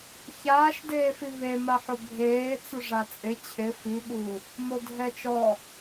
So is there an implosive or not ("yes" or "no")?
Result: yes